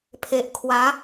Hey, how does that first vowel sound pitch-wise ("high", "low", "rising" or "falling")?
low